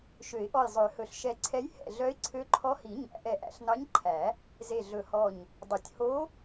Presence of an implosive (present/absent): absent